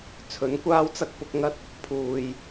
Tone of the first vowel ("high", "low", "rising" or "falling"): rising